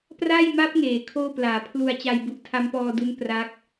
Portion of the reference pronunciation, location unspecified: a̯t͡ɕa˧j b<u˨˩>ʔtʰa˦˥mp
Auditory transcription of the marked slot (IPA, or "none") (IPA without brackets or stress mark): u˨˩